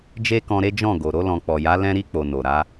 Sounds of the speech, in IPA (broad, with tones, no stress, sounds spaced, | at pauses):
d͡ʒ e˦ k ɔ̃˧ ɾ e˦ d͡ʒ ɔ̃˦˨ ɡ o˨ ɾ o˧ l ɔ̃˨ k͡p ɔ˨ j a˨˦ l ɛ̃˧ ɾ i˧ k͡p o˨ n o˨ ɾ a˨˦